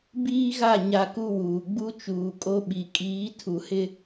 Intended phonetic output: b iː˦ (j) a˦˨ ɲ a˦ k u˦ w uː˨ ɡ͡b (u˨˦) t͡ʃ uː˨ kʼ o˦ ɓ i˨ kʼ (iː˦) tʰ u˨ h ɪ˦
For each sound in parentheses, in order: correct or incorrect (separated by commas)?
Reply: incorrect, incorrect, incorrect